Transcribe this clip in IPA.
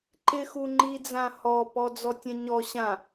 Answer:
ǃ ɪ x u ŋ͡ǃ i d͡z ã h ɔ p ɔ d͡z ɔ tʲ ɛ̃ ɲ ɔ ɕ ã

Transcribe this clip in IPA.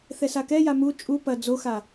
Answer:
θ ɛ s a k ɛ j a m u t͡ʃʼ u p ɐ d͡z o x a

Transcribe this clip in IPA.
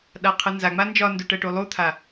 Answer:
ɗ a qʰ ɯ n z a ŋ͡m a n d͡ʒ ɒ n d u ʈ ɜ ʈ u lˠ u t̪ʰ a

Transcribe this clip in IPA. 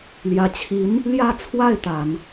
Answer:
l j ä˧˥ t͡ɕʰ i˧˥ n | l j ä˥˧ t͡sʰ w a˥˩ ɪ̯ t̪ a˨˩˦ n

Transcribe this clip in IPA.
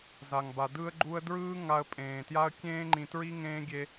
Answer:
z a˨ ŋ b a˨ d ɯː˦ ə̯ ɡ͡ǃ uː˦ ə̯ d ɹ ɯː˦ ŋ a˧ ə̯ pʼ ẽː˨ t j a˦ ə̯ kʲ ẽː˦ ŋ͡ǃ ĩ˧ t ɹ i˦ ŋ ẽː˦ ɡʲ e˦

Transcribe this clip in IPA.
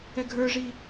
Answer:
ɛ ɡʱ ə˞ ʐ i

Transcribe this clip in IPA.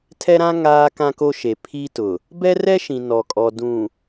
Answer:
tʰ ɛ˦ ɾ ã˦ ŋ aː˦ k ã˦ k o˦ ʃ e˨ pʰ i˦ t ʊ˨ | b ɛ˦ r ɛ˦ ʃ ĩ˨ n ɔ˨ kʼ ɔ˨ d ũ˨

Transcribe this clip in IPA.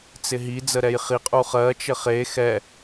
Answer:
t͡s ɪ ɦ i d͡z ə ɾ ɛ j χ i qʼ u χ ɜ t͡ʃ ɘ χ e x ɛ

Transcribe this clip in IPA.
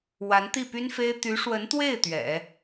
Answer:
w a˧˥ n t̪ i˥˩ p y˥ n f e˥ ɪ̯ t̪ y˧˥ ʂ w ə˧˥ n t̪ w e˥˩ ɪ̯ t̪ ɥ ɛ̰˨˩˦

